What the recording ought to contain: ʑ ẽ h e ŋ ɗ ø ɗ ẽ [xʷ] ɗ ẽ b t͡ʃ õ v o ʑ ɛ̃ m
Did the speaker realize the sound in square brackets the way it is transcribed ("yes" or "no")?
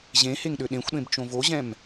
yes